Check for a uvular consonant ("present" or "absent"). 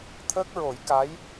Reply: absent